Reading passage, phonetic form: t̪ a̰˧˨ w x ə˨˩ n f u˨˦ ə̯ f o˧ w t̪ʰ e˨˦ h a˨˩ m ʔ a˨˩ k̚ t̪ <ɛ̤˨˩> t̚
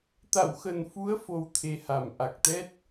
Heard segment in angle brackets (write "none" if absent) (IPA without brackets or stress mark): ɛ˦˥